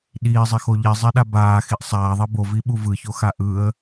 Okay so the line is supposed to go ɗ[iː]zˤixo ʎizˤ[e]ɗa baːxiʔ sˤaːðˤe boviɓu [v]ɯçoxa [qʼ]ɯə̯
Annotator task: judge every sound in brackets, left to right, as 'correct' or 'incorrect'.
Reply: correct, correct, correct, incorrect: ʔ

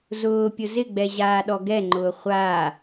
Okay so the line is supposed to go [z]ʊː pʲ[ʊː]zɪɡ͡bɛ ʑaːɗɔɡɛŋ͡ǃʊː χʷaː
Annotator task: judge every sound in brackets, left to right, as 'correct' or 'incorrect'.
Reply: correct, incorrect: ʊ

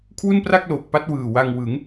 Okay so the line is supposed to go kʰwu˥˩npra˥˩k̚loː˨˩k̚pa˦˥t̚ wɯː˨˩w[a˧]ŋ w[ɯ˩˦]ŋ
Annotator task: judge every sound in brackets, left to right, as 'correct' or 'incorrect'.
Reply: correct, correct

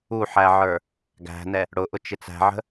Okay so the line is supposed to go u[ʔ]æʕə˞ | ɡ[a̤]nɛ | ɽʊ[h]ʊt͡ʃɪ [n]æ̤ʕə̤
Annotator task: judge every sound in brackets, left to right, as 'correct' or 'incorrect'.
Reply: incorrect: ħ, incorrect: æ̤, incorrect: ʔ, incorrect: t͡s

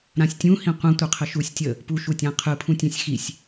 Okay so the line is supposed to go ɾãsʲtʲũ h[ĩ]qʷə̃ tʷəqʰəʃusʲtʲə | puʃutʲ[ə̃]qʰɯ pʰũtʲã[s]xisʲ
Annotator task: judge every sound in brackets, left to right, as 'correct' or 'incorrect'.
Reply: correct, incorrect: ã, incorrect: sʲ

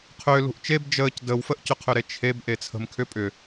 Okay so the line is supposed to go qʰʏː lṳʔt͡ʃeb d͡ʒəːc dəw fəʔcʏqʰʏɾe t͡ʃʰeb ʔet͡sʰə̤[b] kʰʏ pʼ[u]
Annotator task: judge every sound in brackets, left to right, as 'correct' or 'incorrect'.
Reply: incorrect: m, incorrect: ʏ

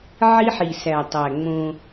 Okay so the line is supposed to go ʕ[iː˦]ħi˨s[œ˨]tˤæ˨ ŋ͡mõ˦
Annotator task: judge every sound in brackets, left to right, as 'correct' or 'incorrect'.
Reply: incorrect: i˦, incorrect: æ˨

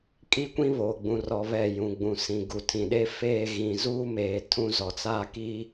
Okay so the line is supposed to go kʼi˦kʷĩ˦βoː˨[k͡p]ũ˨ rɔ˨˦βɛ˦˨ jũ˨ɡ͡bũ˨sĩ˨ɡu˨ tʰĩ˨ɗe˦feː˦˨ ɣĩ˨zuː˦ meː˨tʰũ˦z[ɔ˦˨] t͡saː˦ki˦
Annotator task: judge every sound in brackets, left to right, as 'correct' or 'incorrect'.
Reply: incorrect: ɡ͡b, incorrect: ɔ˨

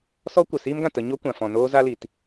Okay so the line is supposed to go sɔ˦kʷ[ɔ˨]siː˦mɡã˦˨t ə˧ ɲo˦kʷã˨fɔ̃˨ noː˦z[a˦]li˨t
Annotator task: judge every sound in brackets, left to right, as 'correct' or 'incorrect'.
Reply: incorrect: ə˨, correct

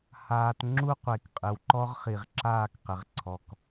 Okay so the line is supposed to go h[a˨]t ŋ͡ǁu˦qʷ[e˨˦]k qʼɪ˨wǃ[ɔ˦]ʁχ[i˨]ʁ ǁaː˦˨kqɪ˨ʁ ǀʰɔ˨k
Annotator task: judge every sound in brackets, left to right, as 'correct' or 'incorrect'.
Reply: incorrect: aː˨, incorrect: e˨, correct, correct

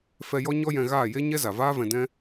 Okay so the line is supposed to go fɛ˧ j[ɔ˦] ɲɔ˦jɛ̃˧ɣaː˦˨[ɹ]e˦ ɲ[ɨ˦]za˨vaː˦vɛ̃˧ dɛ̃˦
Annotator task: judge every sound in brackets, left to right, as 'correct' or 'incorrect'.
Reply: correct, incorrect: j, incorrect: ɛ˦

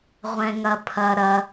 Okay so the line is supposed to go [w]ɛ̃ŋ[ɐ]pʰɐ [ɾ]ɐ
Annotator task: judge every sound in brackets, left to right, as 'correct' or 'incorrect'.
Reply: incorrect: ʁʷ, correct, correct

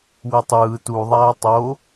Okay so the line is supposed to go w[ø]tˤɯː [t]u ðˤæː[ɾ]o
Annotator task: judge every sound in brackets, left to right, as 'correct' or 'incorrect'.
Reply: incorrect: e, correct, incorrect: tˤ

